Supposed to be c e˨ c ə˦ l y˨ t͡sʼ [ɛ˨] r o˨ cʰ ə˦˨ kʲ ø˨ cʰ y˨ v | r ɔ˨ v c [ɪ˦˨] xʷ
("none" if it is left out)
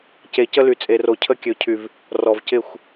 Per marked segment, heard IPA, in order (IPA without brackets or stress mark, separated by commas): e˨, ɪ˦˨